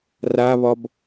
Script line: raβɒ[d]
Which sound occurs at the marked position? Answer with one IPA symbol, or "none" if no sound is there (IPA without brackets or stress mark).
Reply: b